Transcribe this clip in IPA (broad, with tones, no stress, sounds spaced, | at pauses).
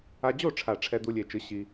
a˧ d͡ʑ o˥˨ ʈ͡ʂʰ a˨˩ ʈ͡ʂʰ ɛ˧ d̪ u˧ lʲ e˨˩ t͡ʃ ɯ˩˥ ɕ i˧